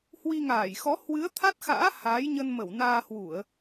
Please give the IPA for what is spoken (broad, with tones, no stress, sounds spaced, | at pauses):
h w i˧ ŋ aː˧˩ j x ɔ˨˦ h w ɨ˨˦ ə̯ t̪ʰ a˦˥ t̚ x a̰ː˧˥ h aː˨˦ j ɲ ə˧ n m ə˧˩ w n aː˧ h w u˧˩˨ ə̯